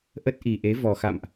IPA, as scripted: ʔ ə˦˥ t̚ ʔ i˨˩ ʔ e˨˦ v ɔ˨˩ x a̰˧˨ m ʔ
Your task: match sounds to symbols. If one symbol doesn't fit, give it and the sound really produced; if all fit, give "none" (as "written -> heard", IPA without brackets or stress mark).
none